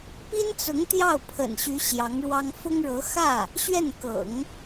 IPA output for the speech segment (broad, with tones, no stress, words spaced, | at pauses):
pi˥nt͡sʊ˧˥ŋ t̪jɑ˥˩ʊ̯pʰə̰˨˩nɕy˧˥ ɕjɑ˧˥ŋɻwɑ˥ŋ fʊ˥ŋɻɤ˧˥ xä˥˩ | ɕɥɛ˥˩n kɤ̰˨˩˦ŋ